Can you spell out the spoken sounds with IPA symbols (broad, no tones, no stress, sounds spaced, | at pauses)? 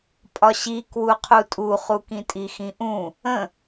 pʼ ɒ ɕ i k w u qʰ u tʼ u χ u k ĩ tʼ i x ĩ ʔ ũ | ə̃